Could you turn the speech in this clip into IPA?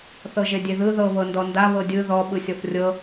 θ ɤ ʒ e dʲ e ð ɯ ð ɤ β ɤ n d ɔ n d a β ɤ dʲ ɯ ð ɔ ɓ ɯ sʲ ɔ f rʲ ɤ

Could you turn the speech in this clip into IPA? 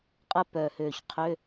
qʼ ə˥ p œ˨˩ h ø˨˩ ç qʰ ø˧˥˧

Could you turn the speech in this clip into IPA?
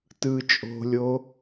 t ɯː t͡ʃʼ o̤ lʲ o

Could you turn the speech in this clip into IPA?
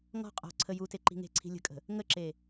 ŋ ɔ̤ qʼ ɔ̤ ǀʰ ə j u t e ǃ i̤ ŋ e̤ ǀʰ i̤ lʲ ə̤ kʼ ə̤ | ŋ ə ǁ e

